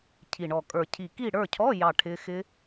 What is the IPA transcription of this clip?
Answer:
cʰ i˨˩ ɳ ɔ˨˩ kʼ ə˞˨˩ cʰ i˨˩ k i˦˨ ɽ ə˞˦˨ cʰ ɔ˧˥˧ j ɑ˦˨ ʈʰ ɪ˦˥ x ɪ˦˥

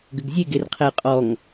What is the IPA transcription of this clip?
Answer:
ɡ ʏ ɡ zʲ e ɡ e r qʰ e j qʼ ɔ ŋ

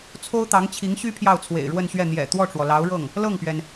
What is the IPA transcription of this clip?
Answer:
t͡sʰ o˥ ʊ̯ t̪ ɑ˧˥ ŋ t͡ɕʰ i˧˥ ŋ ɕ y˥ pʰ j ɑ˥˩ ʊ̯ t͡sʰ w ḛ˨˩ ɪ̯ ɻ w ə˥˧ n ɕ ɥ ɛ˥˩ n̪ j ɛ̰˨˩ t̪ w ɔ˥˩ ʈ͡ʂ w ɔ˩ l ɑ˧˥ ʊ̯ ɻ ɤ˥˩ ŋ | l ɤ˥˩ ŋ p ɥ ɛ˩ n

